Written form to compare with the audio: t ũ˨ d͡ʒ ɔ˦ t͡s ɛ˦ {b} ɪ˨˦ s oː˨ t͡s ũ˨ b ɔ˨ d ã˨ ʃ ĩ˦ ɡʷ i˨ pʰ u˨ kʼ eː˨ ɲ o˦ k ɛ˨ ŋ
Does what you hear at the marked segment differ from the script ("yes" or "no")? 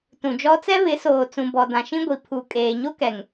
yes